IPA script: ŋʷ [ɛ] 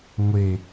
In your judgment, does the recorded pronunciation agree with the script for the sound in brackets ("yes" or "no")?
no